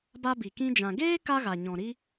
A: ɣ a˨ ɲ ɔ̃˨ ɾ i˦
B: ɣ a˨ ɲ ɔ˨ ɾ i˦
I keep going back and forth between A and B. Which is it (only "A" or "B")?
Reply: A